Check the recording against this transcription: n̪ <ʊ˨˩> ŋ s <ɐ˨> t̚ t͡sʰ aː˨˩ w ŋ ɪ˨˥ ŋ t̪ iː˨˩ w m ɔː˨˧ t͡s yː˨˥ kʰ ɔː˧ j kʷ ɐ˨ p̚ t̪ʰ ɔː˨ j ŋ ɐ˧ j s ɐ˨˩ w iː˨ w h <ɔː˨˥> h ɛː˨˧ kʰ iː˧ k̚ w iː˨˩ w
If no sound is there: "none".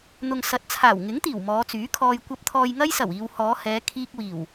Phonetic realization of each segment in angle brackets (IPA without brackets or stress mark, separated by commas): ʊ˨, ɐ˨˥, ɔː˨˧